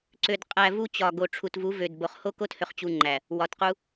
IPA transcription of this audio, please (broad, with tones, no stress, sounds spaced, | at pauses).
ǀ ø˨ d qʼ æ˨ v u˦ t͡ɕ ɒ˨ ɡ o˨ ʈ͡ʂʰ u˨ t v u˨˦ v ø˨ d b o˨ χ h o˦ k o˦ t h ø˨ χ t͡ɕ u˨ ŋ͡ǃ æ˨ | w ɒ˨ t q u˦